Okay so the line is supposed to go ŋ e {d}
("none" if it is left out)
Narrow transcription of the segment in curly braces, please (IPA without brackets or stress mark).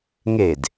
d